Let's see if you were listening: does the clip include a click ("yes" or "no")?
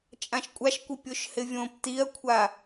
no